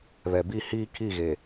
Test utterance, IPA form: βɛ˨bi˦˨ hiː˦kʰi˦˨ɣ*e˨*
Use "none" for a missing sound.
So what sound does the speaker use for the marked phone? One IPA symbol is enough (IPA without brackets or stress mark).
e˨